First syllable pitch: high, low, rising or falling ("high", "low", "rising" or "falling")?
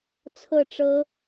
falling